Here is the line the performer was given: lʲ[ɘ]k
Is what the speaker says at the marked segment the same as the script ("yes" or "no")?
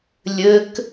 yes